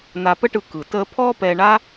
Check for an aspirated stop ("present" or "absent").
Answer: present